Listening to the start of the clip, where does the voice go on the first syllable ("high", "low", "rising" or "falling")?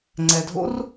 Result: low